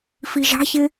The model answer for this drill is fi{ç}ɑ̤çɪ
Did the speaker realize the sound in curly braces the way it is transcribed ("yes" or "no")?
no